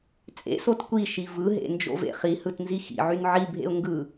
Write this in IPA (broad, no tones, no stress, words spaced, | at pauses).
t͡sʼḛsot kʷiʃi vɯɦḛ nd͡ʒo̰vḛχihɯt nzixḭʕyn ʕibʱḛʊ̯ ŋɡɯ